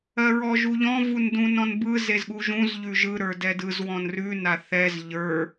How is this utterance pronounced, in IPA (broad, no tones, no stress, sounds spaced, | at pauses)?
ɜ ɹ ɔ ʒ u ʎ ɔ̃ v u n d ũ n ɔ̃ n b ɯ z e z ɠ u ʒ ũ z ʎ ʉ ʒ ɯ ɾ ə˞ d ɛ d ɯ z w ɔ̃ n r ʉ n a θ ɛ z ʎ ə˞